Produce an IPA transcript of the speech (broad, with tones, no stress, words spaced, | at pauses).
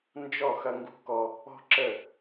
nd͡ʒɔ˦˨ xɐ˦ŋɡṳ˦kɔ˦ | ɔ̤˦ǁə˦˨